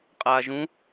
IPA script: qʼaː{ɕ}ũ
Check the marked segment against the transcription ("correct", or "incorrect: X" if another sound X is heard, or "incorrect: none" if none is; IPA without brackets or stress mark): incorrect: ʒ